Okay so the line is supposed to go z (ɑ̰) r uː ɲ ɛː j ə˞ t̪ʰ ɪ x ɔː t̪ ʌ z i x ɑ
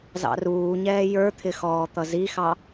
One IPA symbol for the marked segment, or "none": ɑ̰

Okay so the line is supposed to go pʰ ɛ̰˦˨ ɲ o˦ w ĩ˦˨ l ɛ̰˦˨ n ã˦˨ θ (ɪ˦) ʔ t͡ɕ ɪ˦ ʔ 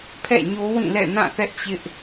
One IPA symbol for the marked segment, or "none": ɛ˦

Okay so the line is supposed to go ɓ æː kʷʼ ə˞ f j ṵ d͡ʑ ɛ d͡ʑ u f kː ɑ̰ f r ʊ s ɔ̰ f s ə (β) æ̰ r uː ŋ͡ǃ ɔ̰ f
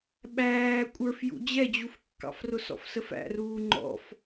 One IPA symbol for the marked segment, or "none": f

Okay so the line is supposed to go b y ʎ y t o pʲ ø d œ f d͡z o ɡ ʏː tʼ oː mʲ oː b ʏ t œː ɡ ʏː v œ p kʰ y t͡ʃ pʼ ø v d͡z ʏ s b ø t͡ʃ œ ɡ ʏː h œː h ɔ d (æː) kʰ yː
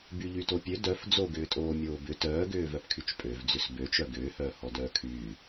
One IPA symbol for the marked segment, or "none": œː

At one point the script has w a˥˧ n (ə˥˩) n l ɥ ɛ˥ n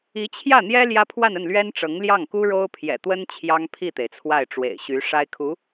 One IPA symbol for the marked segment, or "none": ə˥˩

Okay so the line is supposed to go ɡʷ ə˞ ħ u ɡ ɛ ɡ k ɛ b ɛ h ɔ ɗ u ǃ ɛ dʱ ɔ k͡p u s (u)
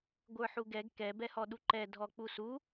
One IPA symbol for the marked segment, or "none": u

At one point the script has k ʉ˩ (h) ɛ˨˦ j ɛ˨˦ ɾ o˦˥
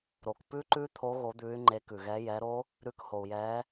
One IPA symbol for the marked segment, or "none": ɣ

